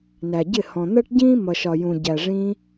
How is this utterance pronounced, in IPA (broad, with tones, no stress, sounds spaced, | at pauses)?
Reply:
n æ˨ ɟ ɪ˦˨ h ɔ̃˨ n̪ ɜ˦ ʈ ɟ ĩː˦ m ʌ˨ ʃ ɒ˨ j ũ˨ ɟ æ˨ ʐ ĩ˧